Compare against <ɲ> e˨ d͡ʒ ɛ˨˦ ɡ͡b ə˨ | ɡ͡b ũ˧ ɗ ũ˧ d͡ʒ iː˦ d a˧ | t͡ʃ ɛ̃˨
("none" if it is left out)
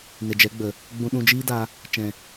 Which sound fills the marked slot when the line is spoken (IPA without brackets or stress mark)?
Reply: n